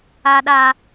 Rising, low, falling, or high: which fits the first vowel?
low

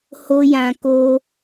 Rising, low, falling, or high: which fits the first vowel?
high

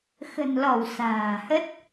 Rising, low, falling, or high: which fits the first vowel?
low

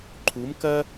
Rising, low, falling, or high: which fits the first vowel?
rising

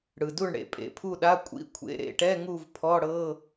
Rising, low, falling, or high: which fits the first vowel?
low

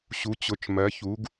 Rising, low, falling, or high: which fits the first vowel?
rising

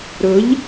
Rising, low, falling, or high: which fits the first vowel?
rising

